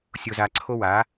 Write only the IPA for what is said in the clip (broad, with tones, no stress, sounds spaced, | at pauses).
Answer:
sʲ o˧ z a˧ ǀʰ o˦ w a˨˦